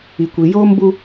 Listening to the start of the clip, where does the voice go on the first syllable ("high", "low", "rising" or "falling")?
low